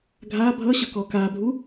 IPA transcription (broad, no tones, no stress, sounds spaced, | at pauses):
ɡʱ a bʱ ʌ ɕ ʌ k ɔ k a bʱ u